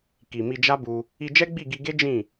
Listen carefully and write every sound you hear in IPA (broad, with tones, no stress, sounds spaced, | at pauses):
k i˨ m i˧ d͡ʒ a˦ b u˧ | i˧ d͡ʒ ɛ˦ ɡ͡b i˦˨ ɡ i˧ ɡ e˦ d͡ʒ ĩ˦˨